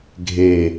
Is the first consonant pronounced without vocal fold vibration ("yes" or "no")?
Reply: no